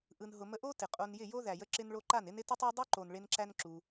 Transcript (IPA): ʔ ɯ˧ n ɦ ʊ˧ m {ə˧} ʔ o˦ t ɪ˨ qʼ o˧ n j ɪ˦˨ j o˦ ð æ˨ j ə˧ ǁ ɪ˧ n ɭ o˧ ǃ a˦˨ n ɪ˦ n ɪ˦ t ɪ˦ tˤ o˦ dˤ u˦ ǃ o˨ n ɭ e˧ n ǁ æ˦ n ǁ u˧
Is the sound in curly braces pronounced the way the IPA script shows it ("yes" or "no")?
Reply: no